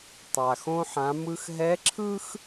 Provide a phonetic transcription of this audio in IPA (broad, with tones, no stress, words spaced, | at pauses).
tˤa˩xõ˧ħã˩˧ mɯ˧xɦɛ˧˥ǁʰɯ˥x